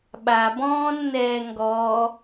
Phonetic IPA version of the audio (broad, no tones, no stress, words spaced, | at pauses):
ɓabɔ̃ːnːɛː ŋɡɔː